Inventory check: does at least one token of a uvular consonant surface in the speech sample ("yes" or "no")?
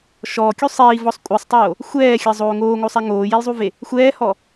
no